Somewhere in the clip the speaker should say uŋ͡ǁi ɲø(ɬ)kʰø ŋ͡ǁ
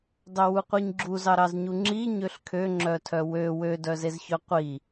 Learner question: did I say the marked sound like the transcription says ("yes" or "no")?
yes